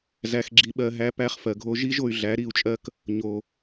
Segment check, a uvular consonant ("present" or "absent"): present